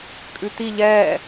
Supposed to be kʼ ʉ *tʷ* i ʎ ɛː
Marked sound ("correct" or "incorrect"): incorrect